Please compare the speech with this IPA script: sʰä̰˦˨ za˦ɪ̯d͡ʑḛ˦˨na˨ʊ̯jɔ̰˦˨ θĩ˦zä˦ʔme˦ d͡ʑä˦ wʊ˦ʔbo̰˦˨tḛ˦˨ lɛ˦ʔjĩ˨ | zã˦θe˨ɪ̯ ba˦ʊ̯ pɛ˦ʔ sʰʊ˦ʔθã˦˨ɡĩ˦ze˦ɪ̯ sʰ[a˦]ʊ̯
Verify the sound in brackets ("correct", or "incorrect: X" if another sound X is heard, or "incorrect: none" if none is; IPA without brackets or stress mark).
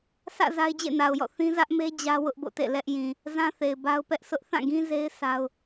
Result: correct